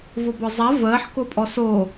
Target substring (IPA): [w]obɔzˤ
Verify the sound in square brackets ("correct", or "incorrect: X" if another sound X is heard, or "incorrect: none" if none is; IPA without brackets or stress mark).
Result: incorrect: v